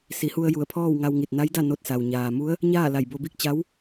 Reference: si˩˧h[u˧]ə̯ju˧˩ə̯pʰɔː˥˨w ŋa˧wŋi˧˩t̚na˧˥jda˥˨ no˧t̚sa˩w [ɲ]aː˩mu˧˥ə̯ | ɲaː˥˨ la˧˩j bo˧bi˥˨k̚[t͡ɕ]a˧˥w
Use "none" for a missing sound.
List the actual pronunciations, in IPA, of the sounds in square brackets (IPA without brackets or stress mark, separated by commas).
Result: u˧, ɲ, t͡ɕ